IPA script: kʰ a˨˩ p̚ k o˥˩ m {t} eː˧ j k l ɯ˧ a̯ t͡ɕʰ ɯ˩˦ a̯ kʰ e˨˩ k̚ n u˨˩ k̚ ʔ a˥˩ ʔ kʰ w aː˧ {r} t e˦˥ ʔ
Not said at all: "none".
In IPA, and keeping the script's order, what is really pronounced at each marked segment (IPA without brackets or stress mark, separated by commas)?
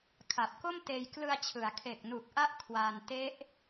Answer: t, n